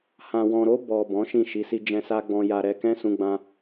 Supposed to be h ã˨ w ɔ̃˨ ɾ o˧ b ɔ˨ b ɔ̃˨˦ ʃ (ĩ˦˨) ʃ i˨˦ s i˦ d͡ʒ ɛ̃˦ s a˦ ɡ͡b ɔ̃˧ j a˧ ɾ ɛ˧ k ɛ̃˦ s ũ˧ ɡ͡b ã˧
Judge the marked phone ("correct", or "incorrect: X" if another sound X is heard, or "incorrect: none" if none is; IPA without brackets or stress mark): correct